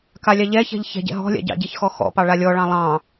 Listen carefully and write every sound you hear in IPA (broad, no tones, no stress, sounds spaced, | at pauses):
k a lʲ ɑ ʎ ɛ ç ɛ̤ ʎ ç ɛ̤ ɟ ɛ̰ ɦ ɔ̤ lʲ a̰ ɟ ɑ̰ ɟ i ç x ɔ x ɔ̰ p ɑ ɭ a lʲ ɔ ɭ ɑ̃ lˠ ɑ̃